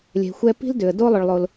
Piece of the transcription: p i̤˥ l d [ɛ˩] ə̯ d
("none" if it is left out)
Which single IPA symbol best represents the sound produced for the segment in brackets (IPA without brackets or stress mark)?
ʏ˩